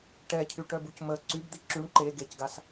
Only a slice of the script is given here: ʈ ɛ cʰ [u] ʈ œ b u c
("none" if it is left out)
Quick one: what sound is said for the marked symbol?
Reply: y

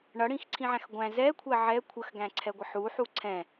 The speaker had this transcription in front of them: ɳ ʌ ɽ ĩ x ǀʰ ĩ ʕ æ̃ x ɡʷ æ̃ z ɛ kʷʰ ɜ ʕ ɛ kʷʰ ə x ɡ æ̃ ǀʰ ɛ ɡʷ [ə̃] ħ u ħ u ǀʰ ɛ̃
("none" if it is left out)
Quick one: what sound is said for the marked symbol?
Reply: ə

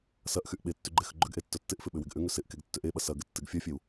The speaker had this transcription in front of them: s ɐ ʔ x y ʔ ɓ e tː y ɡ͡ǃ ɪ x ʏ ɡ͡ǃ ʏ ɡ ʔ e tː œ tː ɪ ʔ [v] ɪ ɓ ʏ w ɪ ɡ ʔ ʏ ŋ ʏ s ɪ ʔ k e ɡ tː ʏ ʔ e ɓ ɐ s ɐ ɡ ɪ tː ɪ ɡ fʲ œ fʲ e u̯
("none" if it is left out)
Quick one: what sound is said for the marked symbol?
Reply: f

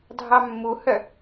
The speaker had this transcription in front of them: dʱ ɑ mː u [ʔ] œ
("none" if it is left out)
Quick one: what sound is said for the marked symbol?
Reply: h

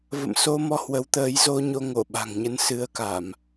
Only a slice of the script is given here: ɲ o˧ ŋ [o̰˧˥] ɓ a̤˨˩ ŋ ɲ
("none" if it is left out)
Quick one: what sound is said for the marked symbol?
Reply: o˧˩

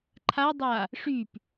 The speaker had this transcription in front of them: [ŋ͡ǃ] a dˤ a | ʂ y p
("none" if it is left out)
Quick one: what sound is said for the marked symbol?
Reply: ǃʰ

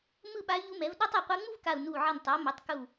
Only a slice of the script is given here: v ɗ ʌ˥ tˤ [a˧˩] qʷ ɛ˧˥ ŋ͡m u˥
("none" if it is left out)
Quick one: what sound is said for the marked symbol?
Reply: ʌ˧˩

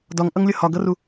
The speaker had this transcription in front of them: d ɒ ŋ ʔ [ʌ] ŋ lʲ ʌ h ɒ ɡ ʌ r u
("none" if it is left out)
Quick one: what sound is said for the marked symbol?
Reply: ʌ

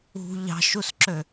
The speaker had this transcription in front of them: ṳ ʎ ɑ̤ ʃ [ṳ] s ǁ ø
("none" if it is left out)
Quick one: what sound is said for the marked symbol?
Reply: u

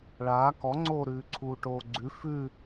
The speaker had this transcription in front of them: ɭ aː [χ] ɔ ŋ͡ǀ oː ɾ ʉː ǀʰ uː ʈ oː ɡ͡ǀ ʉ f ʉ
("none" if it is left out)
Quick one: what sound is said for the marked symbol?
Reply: k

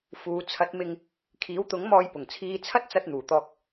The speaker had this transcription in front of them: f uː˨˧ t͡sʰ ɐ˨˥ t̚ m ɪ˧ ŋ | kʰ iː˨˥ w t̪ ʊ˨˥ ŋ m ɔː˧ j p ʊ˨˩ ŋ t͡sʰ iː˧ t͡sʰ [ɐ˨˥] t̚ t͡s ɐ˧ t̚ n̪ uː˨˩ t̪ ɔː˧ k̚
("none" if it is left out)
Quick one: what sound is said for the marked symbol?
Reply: ɐ˥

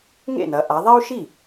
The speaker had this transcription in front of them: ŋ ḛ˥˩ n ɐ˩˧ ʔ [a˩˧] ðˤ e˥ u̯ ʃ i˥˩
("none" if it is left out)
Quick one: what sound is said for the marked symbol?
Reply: a˩˧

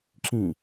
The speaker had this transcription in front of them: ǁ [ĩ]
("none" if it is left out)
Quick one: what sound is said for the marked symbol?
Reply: ĩ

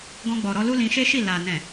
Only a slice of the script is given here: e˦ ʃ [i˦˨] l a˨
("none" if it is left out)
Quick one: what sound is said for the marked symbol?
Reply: i˦˨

